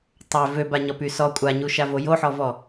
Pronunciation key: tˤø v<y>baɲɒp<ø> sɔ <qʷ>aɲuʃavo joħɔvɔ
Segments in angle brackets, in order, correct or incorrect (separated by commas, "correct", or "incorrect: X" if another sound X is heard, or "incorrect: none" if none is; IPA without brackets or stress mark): incorrect: ø, incorrect: y, incorrect: kʷʼ